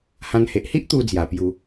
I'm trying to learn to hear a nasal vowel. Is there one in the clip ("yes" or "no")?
yes